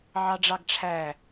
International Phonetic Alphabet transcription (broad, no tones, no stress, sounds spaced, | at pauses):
ʕ ɑ ɖ͡ʐ ɑ ɡ ʈ͡ʂʰ æ